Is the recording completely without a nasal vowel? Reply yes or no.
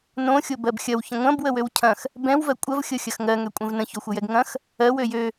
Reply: no